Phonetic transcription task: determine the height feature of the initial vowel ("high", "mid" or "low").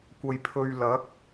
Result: low